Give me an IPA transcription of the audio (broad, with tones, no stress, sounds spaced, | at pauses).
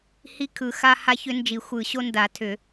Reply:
h i˦ kʰ ɯ˨˩˦ x a˦ h a˦ ç ʏ˦ n d͡ʒ i˨˩˦ xʷ ɯ˨˩˦ ɕ o˦ n d a˨˩˦ tʰ ʏ˨˩˦